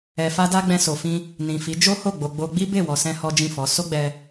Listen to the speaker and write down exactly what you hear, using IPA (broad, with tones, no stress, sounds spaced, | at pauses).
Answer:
ɛ˨ f a˧ d a˧ ɡ͡b ɛ̃˧ s o˨ f ĩ˧ | n ĩ˨ f i˨˦ d͡ʒ o˦ h o˦˨ ɡ͡b o˨ ɡ͡b o˧ ɡ͡b i˦ b e˦˨ w ɔ˨ s ɛ̃˧ h ɔ˦ d͡ʒ ĩ˦˨ f ɔ˨˦ s o˦ ɡ͡b ɛ˧